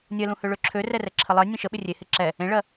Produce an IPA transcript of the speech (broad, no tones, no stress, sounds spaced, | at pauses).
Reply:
nʲ ɜ l ũ h ø ɭ ø ǁʰ ø r ɛ r ɛ ǁʰ ə lˠ ɜ nʲ ẽ ʃ ə ɓ ɪ rʲ e h e ǁ ɛ | ẽ ɭ ɜ